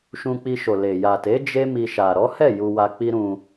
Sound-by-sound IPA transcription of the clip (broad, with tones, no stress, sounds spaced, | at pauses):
ʃ ũ˧ k͡p i˧ ʃ o˨ l e˨ j a˨ t e˨˦ d͡ʒ e˦ m i˧ ʃ a˨ ɾ ɔ˨˦ h ɛ˦˨ j u˧ w a˧ k͡p i˦ ɾ ũ˧